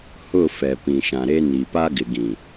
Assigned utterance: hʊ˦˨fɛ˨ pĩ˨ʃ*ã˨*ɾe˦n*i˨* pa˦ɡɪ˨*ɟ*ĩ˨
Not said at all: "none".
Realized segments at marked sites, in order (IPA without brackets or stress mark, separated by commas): ã˨, i˨, ɡ